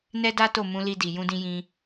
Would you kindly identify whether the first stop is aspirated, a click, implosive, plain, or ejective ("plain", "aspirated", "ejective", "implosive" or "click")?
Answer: plain